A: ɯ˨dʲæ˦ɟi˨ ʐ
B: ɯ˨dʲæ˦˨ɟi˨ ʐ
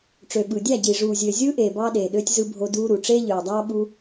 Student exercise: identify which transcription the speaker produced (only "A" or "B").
B